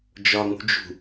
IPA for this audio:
d͡ʒ ɒ ŋ ṳ d͡ʒ ṳ

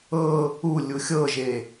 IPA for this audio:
ɤ | u lʲ u xʲ ɤ ʒ e

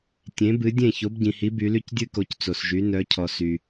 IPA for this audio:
tʲ ẽ˨˦ b ɨ˨˦ dʲ ẽ˥˨ ç o˨˦ b ɟ ĩ˨ h i˨˦ b y˨˦ l y˥ c dʲ ɨ˥ k o˨˦ c t͡s o˨ s ʒ y˨˦ n œ˨˦ cʰ ɔ˨ s y˨

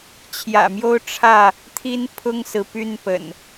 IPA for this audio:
t͡ɕʰ j ä̰˨˩ m j o˦ ʊ̯ ʈ͡ʂʰ ä˥˨ | t̪ʰ i˦ n pʰ ʊ˦ ŋ s ɹ̩˨˦ p y˥˨ n p ə̰˨˩ n

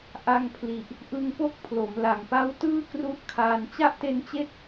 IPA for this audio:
ʔ a˧ ŋ pʰ l i˨˩ ʔ | ʔ ɯ˧ ŋ p o˦˥ k̚ pʰ l o˩˦ m l a˨˩ ŋ p a˦˥ w t ɯː˥˩ k r u˦˥ ʔ kʰ aː˧ n t͡ɕ a˥˩ ʔ t e˦˥ n t͡ɕ e˥˩ k̚

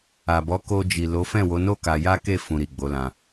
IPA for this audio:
a˨ b ɔ˨˦ k o˧ d͡ʒ i˨ l o˨˦ f ɛ̃˦˨ w o˨˦ n o˦ k a˧ j a˦ k e˦˨ f ũ˧ ɾ i˨ ɡ͡b o˨˦ l ã˧

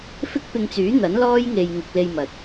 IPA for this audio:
f ɪ˥ k̚ p ɪ˧ ŋ t͡s yː˨˥ n̪ ɐ˨˥ n l ɔː˥ j ŋ e˧ j ŋ ɪ˧ k̚ l e˧ j m ɐ˨ t̚

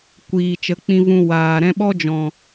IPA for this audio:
kʷ iː˨ t͡ʃ ə˨˦ k͡p ĩ˧ v ũ˧ w aː˨ ɾ ɛ̃˦ ɓ ɔ˦ d͡ʒ ɔ̃˨

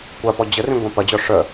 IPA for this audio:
kʷ a p ɔ d͡ʑ ə r ĩ ɡʷ ã p ɐ d͡ʑ ɔ ʂ œ

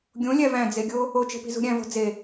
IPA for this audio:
ɡʲ õ lʲ æ v æ̃ d͡z e ɡʲ o | o t͡ʃ e̤ p i̤ z ṳ ɾʲ æ̃ v o̤ d͡z e

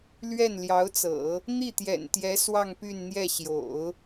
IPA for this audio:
l ɥ ɛ˥˩ n l j ɑ˧˥ ʊ̯ t͡s ɤ̰˨˩˦ | n̪ i˥˩ t̪ j ɛ̰˨˩ n t̪ j ɛ˧˥ s w ɑ˥˧ ŋ p y˥˧ n n̪ j ɛ˥˩ ɕ j o̰˨˩˦ ʊ̯

